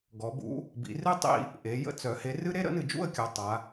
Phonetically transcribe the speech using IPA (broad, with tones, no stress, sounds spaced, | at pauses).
ɡ ɔ˩˧ b ṵ˨˥ | b ḭ˩˧ r ɨ˥ tˤ ḭ˥˧ | ʔ e˩˧ j ə̰˥ t͡s œ˩˧ h e˨˥ r ɨ˥ ɾ e˥ ɾ ə̰˨˥ n ɨ˧˩˧ d͡ʒ ṵ˥˧ ə̯ kʲ ɔ˩˧ tˤ a˩˧